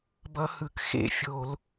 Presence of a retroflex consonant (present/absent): absent